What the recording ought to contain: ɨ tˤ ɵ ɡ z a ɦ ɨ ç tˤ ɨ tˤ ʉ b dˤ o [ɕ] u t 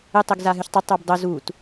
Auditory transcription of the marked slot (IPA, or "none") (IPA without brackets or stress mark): z